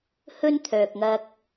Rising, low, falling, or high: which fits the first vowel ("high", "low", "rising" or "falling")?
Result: high